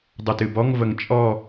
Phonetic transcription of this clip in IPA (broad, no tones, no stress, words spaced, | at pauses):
dˤutɨbɔŋ vəŋt͡ʃʼɔ